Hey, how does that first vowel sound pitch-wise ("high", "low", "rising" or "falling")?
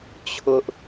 high